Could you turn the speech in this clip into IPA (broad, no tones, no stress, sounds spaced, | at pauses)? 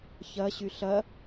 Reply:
ç ɐ ɕ y ɬ ɐ